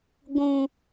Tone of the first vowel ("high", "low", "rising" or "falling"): high